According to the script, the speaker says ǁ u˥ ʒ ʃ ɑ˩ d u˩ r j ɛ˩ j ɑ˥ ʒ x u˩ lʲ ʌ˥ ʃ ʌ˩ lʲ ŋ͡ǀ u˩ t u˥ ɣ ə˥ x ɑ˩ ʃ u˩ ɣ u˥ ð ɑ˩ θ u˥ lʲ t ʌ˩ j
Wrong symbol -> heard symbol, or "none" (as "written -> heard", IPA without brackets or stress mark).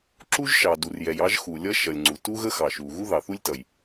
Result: none